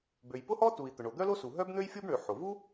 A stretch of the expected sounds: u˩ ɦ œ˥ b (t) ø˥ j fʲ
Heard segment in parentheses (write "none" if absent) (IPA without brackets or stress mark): n̪